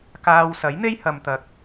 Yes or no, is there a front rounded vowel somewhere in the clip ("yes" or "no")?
no